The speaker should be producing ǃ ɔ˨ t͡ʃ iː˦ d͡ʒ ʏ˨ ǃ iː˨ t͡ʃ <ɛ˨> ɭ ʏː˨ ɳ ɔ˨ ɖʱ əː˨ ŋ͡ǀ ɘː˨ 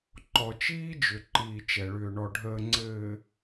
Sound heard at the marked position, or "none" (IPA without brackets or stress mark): ɛ˨